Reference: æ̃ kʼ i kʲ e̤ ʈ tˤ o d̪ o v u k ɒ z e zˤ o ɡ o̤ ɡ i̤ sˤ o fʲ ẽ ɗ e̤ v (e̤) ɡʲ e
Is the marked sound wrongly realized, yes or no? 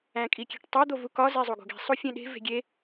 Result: no